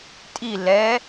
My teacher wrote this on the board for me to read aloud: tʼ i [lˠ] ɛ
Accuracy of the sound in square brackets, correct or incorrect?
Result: incorrect